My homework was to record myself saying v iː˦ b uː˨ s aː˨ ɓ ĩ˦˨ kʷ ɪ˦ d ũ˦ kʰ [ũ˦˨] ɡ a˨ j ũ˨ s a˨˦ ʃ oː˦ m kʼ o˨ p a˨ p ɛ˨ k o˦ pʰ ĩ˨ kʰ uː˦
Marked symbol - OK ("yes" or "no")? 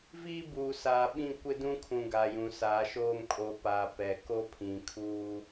no